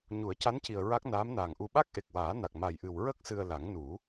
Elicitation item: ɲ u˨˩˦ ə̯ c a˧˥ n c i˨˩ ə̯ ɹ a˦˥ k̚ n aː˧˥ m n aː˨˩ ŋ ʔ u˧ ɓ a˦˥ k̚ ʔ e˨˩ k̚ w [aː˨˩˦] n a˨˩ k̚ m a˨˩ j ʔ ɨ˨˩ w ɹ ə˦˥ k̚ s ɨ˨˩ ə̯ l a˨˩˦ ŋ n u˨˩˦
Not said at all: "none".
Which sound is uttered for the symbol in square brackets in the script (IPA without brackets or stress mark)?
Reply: aː˨˩˦